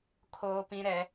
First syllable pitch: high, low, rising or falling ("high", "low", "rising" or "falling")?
high